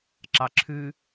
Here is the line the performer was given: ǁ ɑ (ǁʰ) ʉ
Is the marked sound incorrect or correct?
correct